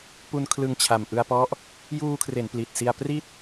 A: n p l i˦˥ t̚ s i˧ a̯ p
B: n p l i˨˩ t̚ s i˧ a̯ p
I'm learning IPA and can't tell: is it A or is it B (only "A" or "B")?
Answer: B